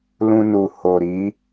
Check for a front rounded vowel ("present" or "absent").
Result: absent